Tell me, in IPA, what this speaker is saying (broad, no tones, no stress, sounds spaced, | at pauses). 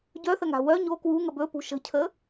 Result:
ɟ œ θ ə ŋ a̤ w œ ɲ o k w u ŋ ə b ɵ p ṳ ʃ ə̤ cʰ ə